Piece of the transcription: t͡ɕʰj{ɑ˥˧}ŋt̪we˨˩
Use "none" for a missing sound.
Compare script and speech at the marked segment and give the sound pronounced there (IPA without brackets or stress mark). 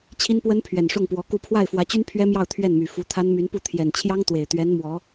ɑ˥